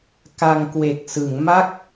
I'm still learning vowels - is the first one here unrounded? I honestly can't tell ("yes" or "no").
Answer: yes